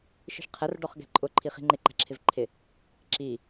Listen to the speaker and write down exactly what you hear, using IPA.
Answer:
ʃ i̤ ʃ qʰ ɛ r ɖ ɔ χ ɡ ɛ̤ ǃʼ ʊ ǃʰ i χ i̤ ŋ͡ǃ ɪ ǃ æ̤ ǁʰ ɪ v ǃʰ ɪ | ǁ i

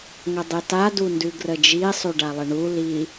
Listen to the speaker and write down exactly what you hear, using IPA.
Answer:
ŋ ə dˤ i t a d u n d ʉ ɡ r ə d͡ʒ i sˤ ʉ ɖ a lˠ ə ɳ u l i

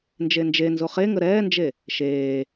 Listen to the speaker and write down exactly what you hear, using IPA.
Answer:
n d͡ʒ e n d͡ʒ e n z o χ e ŋ ə ɾ ɛː n d͡ʒ e | ʃ eː

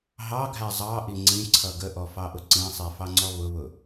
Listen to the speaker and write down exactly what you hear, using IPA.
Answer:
ɦ ɑ ɡʱ æ zˤ ɑ ʔ i ŋ͡ǀ ĩ ǀʰ ʌ ɡ ə ʔ ɔ f ɑ ʔ ʊ ǀ ĩ sˤ i f ɑ ŋ͡ǀ ɔ β ʊ β ʊ

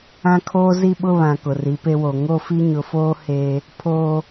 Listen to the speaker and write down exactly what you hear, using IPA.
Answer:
ã˦ kʰ oː˦ z i˦ ɓ ʊ˦ β ã˨ k ʊ˨ r i˨˦ p e˦ w o˨ ŋ o˦˨ f i˦ ɲ ʊ˨ f oː˦ h eː˦ | pʰ oː˦

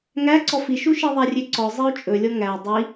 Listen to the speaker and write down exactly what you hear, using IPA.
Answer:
ŋ æ ǀ ɔ f i ʃ u ʃ i ðˤ æ rʲ ø ǀ ɔ zˤ i u̯ t͡ʃʼ ɵ lʲ ɔ ŋ æ dˤ i

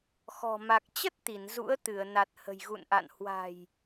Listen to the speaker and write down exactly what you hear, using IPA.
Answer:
x ɔ̤˨˩ m a˨˩ k̚ t͡ɕ ə˦˥ t̚ t̪ i˧˩ n z ṵ˧˥ ə̯ t̪ ɨ˧˩ ə̯ n a˨˩ t̚ h ə̤˨˩ j ɣ ṵ˧˨ n ʔ a̰˧˨ n h w a̤˨˩ j

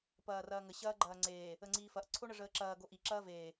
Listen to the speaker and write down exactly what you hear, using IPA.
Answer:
p ɐː r ɐː ŋ ə ɕ ɐː ɡ͡ǃ ɐː ŋ͡ǀ eː | ə ŋ͡ǀ iː f ɐ ʔ ǀʰ o ɳ ə ʐ əː ǁ ɐː ɡ o ʔ i ǁ ɐː v eː

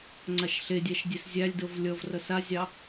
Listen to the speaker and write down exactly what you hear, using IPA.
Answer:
ŋ͡ǀ a ʃ ɬ e dʲ æ ʃ dʲ e s zʲ æ lʲ d ɤ v lʲ ʌ v r ʌ s a zʲ ɑ

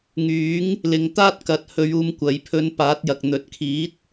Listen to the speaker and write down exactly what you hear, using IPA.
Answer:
ŋ yː˨˥ ŋ | l ɪ˨˧ ŋ t̪ aː˥ t̚ k ɐ˨˥ t̚ h ɵ˧ ɥ uː˧ m kʷ ɐ˨˧ j pʰ ɵ˧ n p aː˨˥ t̚ j ɐ˨ k̚ n̪ ɵ˨˥ t̚ kʰ iː˨˥ t̚

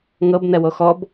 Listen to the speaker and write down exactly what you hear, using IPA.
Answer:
ŋ ɤ b n ɛ w o x ɔ b

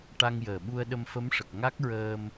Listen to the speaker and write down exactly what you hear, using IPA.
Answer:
ʈ a˧ ŋ j əː˨˩ ɓ u˧ ə̯ ɗ ə˧ m f ə˧˥ m ʂ ə˨˩ k̚ ŋ a˦˥ k̚ ɹ əː˧ m

